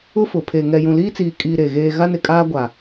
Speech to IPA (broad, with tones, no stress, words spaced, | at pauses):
ʊ˦fʊ˨ pʰe˨ ŋɛ˨jũ˨liː˦t͡siː˨ kʼiː˨ ɾe˨ɣeː˦ ɣa˦nɪ˨kʼaː˦ɡʷa˨